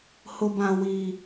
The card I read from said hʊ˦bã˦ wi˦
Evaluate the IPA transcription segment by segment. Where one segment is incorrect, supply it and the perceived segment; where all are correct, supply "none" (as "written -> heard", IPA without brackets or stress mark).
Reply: none